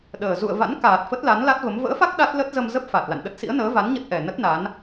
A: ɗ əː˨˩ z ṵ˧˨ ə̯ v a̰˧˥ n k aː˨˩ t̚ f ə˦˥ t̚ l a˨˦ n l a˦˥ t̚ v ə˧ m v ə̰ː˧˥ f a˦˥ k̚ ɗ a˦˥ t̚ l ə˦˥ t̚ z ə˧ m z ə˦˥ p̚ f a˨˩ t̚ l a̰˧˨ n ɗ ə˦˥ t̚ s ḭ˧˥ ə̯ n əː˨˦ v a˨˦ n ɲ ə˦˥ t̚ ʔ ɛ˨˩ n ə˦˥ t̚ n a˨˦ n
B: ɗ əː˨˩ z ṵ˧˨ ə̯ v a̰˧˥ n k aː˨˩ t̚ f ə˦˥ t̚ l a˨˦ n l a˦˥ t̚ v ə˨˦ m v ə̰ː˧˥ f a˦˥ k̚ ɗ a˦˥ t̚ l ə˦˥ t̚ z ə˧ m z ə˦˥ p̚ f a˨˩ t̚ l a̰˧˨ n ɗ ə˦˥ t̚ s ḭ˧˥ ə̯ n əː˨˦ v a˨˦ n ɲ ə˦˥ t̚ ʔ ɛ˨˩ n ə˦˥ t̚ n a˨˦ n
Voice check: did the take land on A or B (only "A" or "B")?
B